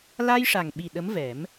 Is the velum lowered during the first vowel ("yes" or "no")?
no